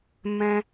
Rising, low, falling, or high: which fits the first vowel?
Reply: high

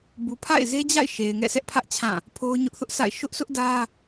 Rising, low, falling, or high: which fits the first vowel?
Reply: low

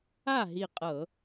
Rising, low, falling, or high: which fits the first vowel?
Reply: falling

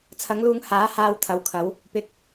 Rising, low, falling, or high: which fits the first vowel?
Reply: rising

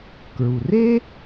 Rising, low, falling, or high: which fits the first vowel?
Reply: low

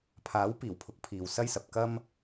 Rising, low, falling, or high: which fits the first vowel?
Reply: rising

